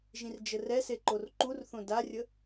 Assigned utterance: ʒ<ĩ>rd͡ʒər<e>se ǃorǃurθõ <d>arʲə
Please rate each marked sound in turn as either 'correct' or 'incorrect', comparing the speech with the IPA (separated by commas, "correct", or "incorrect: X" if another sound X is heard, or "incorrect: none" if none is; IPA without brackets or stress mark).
correct, incorrect: ɛ, correct